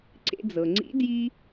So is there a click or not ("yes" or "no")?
yes